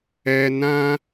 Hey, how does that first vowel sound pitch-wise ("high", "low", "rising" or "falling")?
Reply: high